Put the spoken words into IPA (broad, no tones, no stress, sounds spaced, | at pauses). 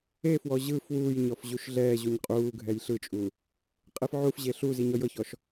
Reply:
e f w ɔ ʑ ɯ f w uː j ɲ ɔ f ʑ u ʃ ɮ ɛː ʑ u ɲ qʼ uː ɡʱ ɛ j ɬ ɯ t͡ʃʼ u | qʼ e f ʕ u f ʑ e ɬ u z i ɲ ɔ j ɤ ç ɔ ʃ